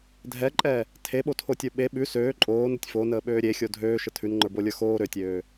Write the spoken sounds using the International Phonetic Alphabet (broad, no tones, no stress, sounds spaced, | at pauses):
dʱ ɛ ǃʼ ɛ | tʰ e ɓ o tʰ o tʲ ə˞ ɓ e ɓ ʉ s øː ǃʼ oː n ə tʲ f o n əː ɓ øː ɾʲ e xʲ o dʱ øː ʃ ə tʰ ʉ n ŋ͡ǃ ə˞ b o lʲ ə˞ x oː ɾ ø tʲ øː